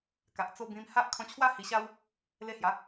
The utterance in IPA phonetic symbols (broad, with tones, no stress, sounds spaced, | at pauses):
k a˨ ʔ t͡s o˧ b ĩ˧ m h a˦ ʔ kʰ ɔ̃˧ t͡ɕʰ w a˦ h i˧ ɕ a˦ w | l e˧ h j a˨˦